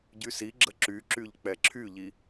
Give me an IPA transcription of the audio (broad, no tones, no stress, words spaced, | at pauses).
ɟysiɡ͡ǁə ǁyǁyʎ k͡pɛǁʰyʎi